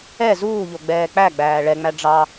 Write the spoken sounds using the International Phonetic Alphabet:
ɛ z uː ʎ o ɡ͡b ɛː k͡p æ ɡ͡b æː ɭ ɛ ŋ͡m æ ɖ͡ʐ ɑ

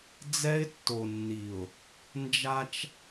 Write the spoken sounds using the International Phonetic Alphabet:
d͡z ɛ˦ ɪ̯ tː o˨ nː i˨ ʊ̯ | n d͡ʒ a˦ t͡ʃ

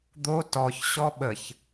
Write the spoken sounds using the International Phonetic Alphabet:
d̪ o t ɔ ç ɕ ɔ ɓ ə ç

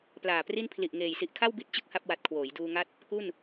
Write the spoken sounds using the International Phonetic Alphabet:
p l aː˨˩ p r i˥˩ n pʰ l i˨˩ ʔ ŋ eː˨˩ j s i˨˩ ʔ kʰ a˥˩ w b i˦˥ t̚ t͡ɕ ɯ˥˩ k̚ h a˥˩ p̚ w a˨˩ t̚ kʰ w oː˩˦ j d uː˧ ŋ a˦˥ t̚ | k u˥˩ n

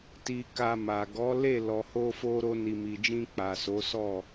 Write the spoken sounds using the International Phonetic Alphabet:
t i˨ k a˧ m a˨ ɡ ɔ˨˦ l e˦˨ l ɔ˨ h o˧ f o˧ ɾ o˧ n i˨ m i˨ d͡ʒ ĩ˧ k͡p a˨ s o˨˦ s ɔ˦˨

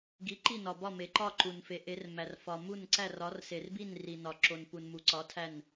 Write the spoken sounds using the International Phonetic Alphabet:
ɡ i˨˥ ǃ i˥˨ n ɒ˨ b ɒ˥˨ m e˨ ǃ ɒ˥˨ ǃ u˨ n f e˨˥ ʔ e˨˥ r m æ˨ r f ɒ˨ m u˥˨ n ǀ æ˥˨ r ɒ˨˥ r s e˨ r b i˥˨ n r i˨ n ɒ˨ ǁ o˨ n p u˨ n m u˨ ǀ ɒ˨˥ tʰ æ˥˨ n

